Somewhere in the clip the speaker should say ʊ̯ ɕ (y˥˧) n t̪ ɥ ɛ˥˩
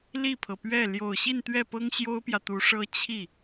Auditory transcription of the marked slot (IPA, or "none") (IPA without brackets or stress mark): i˥˧